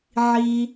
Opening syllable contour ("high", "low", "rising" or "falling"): low